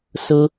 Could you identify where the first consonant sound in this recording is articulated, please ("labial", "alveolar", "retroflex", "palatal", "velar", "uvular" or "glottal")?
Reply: alveolar